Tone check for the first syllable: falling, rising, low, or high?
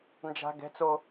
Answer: low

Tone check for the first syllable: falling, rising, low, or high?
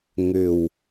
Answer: low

